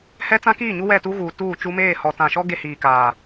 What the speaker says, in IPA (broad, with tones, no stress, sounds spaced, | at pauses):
h ɛ˦ t͡s ã˦ k iː˦˨ ɲ u˦ w ɛ˦˨ t u˦ ɣ uː˨ t uː˦˨ t͡ʃ u˦ m eː˦˨ h ɔ˨ t ã˨ ʃ ɔ˦ ɡ e˦ h iː˨ k aː˨